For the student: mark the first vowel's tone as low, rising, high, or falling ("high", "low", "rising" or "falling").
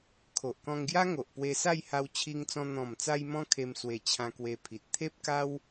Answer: low